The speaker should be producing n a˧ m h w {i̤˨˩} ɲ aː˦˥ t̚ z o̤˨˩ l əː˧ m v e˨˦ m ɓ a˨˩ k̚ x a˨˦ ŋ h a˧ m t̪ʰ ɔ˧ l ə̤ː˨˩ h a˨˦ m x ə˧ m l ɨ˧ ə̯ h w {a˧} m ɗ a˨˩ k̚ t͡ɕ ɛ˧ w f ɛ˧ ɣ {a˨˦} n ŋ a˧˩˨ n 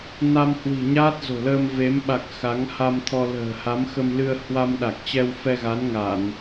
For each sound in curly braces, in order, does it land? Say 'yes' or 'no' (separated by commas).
yes, yes, yes